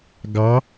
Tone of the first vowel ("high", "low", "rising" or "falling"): rising